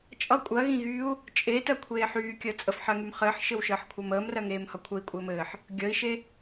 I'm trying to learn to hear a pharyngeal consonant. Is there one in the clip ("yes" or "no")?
yes